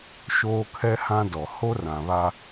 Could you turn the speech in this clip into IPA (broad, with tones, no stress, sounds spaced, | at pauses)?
ʃ oː˦ kʰ ɛ˦ h ã˦ d ɔ˨ h o˦ r ã˨ β a˦